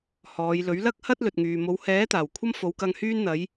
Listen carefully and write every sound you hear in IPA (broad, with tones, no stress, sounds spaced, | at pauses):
h ɔː˨˧ j l ɵ˨˥ ɥ l ɐ˥ k̚ h ɐ˥ t̚ l ɵ˨ t̚ ŋ yː˨ m o˨˧ w h ɛː˨˥ t̪ aː˨˩ w kʷʰ ɐ˥ m f o˨˧ w k ɐ˧ ŋ h yː˥ n n̪ ɐ˨˥ j